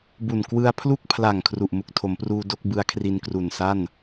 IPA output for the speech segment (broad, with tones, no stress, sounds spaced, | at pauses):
b u˨˩ n k w ɯ˧ a̯ pʰ l u˥˩ k̚ pʰ l a˨˩ ŋ kʰ r u˨˩ ʔ m u˨˩ k̚ tʰ o˩˦ m p r uː˧ d o˥˩ k̚ b ɯ˦˥ a̯ kʰ r i˧ n k r u˨˩ n s a˥˩ n